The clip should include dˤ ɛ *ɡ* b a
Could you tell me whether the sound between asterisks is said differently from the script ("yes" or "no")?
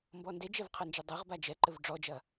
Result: yes